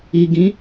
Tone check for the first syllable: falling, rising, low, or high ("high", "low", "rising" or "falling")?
low